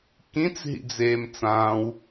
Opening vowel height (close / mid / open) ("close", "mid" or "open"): close